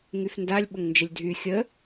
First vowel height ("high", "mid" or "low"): high